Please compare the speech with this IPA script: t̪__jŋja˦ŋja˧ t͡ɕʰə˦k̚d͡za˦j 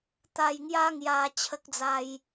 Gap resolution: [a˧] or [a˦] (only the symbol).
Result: a˧